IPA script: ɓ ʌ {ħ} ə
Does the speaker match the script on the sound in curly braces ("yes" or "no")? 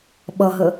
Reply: no